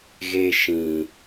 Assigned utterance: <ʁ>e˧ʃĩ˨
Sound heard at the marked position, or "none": ɣ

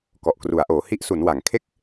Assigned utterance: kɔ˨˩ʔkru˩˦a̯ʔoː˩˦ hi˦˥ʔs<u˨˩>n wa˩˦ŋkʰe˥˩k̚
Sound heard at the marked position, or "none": u˩˦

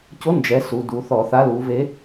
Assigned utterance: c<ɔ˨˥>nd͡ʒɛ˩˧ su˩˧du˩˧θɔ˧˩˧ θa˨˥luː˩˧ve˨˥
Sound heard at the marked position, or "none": o˨˥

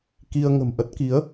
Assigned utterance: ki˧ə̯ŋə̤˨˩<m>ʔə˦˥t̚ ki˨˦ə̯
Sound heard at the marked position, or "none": m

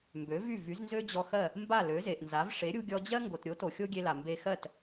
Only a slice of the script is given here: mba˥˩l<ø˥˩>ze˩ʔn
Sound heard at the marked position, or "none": ø˩˥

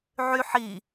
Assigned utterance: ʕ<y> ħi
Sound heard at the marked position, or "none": y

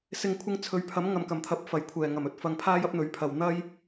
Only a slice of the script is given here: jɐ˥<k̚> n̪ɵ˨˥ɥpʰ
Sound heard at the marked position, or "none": p̚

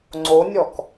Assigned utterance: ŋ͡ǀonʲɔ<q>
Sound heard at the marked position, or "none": k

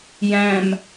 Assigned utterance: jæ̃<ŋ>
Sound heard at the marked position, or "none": m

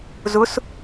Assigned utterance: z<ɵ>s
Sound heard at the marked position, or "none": ʊ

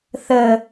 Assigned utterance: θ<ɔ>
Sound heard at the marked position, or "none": ə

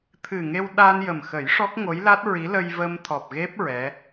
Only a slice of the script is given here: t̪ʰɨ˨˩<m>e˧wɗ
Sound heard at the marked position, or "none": ŋ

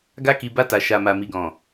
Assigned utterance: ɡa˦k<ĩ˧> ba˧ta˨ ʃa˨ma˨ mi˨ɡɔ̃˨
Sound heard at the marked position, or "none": i˧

